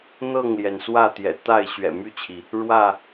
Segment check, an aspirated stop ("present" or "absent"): present